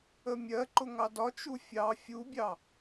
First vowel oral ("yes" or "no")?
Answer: yes